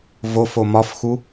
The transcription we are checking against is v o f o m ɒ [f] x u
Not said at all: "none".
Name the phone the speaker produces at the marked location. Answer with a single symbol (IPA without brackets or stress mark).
f